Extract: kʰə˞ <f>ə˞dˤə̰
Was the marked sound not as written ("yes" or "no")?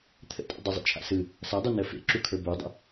yes